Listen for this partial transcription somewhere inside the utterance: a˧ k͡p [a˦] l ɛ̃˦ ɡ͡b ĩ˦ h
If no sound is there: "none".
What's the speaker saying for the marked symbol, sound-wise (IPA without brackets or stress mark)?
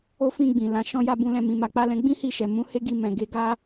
a˦